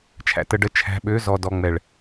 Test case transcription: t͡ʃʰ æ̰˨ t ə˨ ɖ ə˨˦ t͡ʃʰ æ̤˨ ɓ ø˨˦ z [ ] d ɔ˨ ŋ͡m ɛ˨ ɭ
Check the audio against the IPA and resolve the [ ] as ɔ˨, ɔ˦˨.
ɔ˨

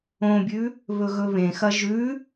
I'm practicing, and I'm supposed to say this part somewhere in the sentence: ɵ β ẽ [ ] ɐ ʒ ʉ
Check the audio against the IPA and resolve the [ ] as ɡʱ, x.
x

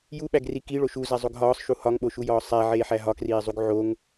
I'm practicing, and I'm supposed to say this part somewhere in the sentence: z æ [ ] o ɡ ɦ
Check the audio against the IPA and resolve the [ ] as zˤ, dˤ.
zˤ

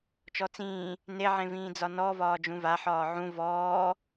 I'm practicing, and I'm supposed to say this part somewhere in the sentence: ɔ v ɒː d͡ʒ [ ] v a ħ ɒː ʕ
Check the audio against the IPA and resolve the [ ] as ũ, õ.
ũ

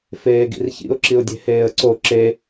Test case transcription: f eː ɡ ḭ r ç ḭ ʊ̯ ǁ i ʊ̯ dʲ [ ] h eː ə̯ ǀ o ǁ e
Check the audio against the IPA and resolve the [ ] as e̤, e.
e̤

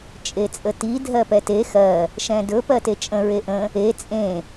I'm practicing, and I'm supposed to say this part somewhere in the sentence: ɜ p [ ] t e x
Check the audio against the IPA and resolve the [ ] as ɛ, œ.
ɛ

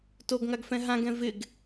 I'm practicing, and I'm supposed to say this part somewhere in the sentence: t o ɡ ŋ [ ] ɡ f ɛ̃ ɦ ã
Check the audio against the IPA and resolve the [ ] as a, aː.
a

